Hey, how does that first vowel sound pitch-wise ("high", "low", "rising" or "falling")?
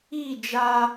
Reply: falling